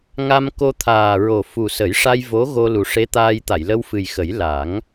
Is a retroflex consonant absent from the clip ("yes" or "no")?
no